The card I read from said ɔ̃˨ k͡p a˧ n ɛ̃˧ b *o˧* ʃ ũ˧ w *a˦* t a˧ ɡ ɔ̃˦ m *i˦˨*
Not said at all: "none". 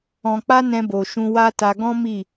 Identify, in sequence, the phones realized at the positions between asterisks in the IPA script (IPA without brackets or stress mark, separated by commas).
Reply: o˨, a˦, i˦˨